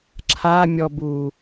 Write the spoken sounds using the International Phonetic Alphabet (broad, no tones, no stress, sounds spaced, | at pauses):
ǁʰ a mʲ ɔ b u